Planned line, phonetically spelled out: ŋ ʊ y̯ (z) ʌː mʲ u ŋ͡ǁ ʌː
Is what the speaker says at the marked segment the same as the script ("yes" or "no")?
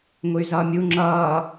yes